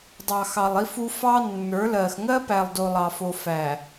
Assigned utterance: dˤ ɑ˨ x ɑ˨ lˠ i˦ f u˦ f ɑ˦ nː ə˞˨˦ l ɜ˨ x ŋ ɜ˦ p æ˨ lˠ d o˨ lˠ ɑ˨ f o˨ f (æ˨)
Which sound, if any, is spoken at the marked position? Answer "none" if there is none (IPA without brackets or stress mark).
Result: æ˨